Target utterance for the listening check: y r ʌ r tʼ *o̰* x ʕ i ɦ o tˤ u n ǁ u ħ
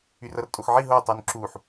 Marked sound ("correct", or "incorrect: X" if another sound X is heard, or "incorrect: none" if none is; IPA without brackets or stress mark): incorrect: o